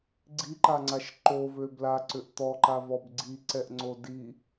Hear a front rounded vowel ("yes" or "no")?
yes